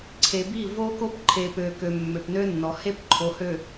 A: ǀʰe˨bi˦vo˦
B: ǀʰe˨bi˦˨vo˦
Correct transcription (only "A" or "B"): B